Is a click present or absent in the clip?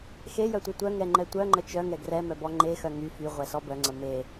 present